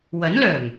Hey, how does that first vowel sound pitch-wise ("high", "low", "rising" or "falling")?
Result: rising